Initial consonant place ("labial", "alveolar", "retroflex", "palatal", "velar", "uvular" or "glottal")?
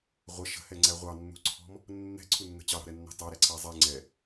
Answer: uvular